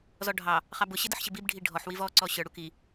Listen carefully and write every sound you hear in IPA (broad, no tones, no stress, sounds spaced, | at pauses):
z ɔ ɖʱ ɑ | χ ɑ b ʊ ɕ ɪ d ə ħ ɕ ɪ b i b ɖʱ i ɖʱ ɔ ħ w i v ɔ ǀ ɔ ɕ ə˞ ɽ u k i